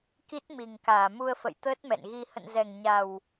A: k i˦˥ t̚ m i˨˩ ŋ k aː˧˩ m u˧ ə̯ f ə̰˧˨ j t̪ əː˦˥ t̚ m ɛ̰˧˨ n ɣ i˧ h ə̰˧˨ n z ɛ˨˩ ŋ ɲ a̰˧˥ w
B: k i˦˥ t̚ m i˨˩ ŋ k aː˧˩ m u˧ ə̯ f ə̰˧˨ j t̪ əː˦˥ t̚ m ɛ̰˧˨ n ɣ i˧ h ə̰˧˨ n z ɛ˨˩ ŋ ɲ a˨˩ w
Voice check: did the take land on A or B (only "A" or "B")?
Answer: B